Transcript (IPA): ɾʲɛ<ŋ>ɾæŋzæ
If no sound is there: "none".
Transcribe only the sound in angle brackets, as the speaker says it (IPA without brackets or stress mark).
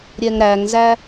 ŋ